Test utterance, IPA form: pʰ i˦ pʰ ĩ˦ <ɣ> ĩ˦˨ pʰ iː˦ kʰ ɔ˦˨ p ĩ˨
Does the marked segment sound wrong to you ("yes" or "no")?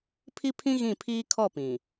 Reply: no